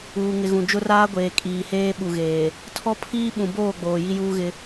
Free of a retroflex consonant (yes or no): yes